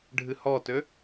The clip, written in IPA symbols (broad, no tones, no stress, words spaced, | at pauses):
ɖʱɨhɔtø